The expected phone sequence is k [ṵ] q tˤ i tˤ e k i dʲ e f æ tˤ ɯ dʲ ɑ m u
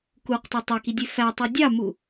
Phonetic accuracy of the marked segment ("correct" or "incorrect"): incorrect